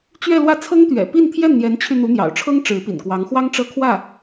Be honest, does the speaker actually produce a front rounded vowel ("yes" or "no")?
yes